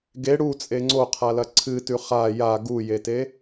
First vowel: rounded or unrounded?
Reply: unrounded